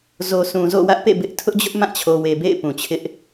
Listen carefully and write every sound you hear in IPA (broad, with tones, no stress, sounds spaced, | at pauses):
z o˨ s ũ˨ z o̰˦˨ w ä˦ ʔ p ḛ˦˨ b ɪ˦ ʔ tʰ ʊ˦ ʔ d͡ʑ ʊ˦ ʔ m ã˦˨ t͡ɕʰ o˨ w e˨ b ḛ˦˨ ɪ̯ p ũ˨ t͡ɕʰ ɪ˦ ʔ